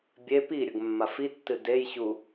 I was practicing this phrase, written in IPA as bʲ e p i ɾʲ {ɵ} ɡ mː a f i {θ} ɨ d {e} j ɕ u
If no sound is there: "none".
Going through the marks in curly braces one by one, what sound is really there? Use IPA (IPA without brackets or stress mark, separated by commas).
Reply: ɵ, tː, e